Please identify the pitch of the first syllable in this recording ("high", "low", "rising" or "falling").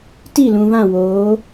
falling